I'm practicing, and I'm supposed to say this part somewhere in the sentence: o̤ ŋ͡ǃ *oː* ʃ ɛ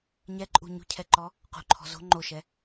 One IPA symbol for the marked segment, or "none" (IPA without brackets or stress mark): o